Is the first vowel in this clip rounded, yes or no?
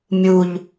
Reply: yes